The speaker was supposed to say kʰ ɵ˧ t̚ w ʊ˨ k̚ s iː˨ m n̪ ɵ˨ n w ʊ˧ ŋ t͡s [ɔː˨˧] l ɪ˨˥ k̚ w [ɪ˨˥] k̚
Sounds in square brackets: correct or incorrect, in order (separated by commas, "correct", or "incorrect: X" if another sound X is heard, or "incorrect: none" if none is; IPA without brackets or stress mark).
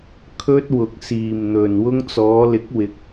correct, correct